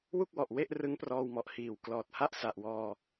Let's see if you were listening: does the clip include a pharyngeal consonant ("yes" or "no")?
no